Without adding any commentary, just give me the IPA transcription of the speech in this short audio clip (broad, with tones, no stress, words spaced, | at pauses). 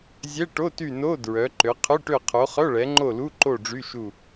zʲɛ˧˥˧ʈo˧˥˧ty˦˨ no˧˥˧ dɹœ˨˦ǃø˨˦ qʰø˧˥˧ʈø˦˨ qʰo˨˦χœ˧˥˧ɭɛ˨˦ŋ͡ǃo˦˨ lu˧˥˧ǃo˦˨ ɖ͡ʐy˧˥˧ʃu˦˨